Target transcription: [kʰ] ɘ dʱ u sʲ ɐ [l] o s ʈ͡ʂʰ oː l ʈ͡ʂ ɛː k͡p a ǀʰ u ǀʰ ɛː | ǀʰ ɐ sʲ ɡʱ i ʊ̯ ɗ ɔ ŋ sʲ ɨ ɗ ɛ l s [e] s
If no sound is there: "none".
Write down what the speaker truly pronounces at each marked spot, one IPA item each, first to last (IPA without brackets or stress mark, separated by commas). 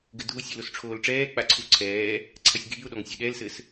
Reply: ɡ, l, ɘ